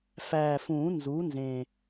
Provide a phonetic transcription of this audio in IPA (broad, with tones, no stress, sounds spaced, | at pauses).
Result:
f æ˨˩ f ũ˨˩˦ n z u˩˥ n z ẽ˨˩